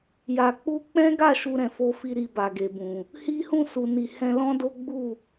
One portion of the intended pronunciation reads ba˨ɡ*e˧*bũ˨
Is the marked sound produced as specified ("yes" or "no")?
no